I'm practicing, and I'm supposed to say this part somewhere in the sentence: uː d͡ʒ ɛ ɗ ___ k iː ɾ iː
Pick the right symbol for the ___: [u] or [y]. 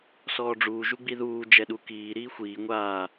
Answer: u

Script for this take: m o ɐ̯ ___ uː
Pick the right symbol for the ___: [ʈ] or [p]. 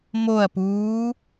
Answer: p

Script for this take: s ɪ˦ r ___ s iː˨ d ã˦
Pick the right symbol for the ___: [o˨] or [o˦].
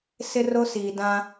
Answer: o˦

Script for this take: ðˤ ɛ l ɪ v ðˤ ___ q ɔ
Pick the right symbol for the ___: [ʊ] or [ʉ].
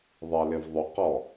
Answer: ʊ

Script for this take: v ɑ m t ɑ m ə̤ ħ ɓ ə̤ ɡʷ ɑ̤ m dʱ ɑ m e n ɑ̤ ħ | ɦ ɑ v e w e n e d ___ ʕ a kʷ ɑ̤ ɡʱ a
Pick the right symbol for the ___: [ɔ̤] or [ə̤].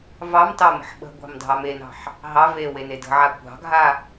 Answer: ə̤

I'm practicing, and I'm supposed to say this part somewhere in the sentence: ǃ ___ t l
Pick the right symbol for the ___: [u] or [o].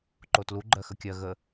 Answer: o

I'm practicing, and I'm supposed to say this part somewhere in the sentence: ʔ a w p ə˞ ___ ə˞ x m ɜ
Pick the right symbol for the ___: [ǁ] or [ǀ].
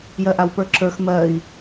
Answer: ǁ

